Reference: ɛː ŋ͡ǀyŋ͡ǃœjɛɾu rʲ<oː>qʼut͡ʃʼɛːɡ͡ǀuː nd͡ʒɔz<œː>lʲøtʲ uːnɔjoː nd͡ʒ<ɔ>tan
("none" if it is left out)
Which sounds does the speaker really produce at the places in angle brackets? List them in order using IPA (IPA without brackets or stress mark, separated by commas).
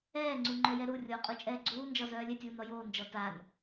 oː, œː, ɔ